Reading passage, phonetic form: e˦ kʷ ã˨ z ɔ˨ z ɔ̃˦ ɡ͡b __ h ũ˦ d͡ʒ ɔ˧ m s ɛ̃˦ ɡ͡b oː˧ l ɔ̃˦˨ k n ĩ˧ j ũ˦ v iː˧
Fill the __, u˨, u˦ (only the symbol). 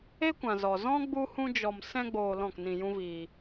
u˦